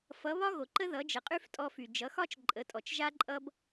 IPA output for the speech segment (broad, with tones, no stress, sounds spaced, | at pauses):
f ʌ˩˥ β ɒ˥ ɣ o˩ ǃ ə˥ ð ʌ˩˥ d͡ʒ ə˩ qʼ y˥ f tʼ ɔ˧ f y˩ d͡ʒ ʌ˩˥ x ɒ˥ t͡ʃ ǃʼ ə˩˥ tʼ ɔ˩ t͡ʃ ʒ a˥ ǃʼ ʌ˥ b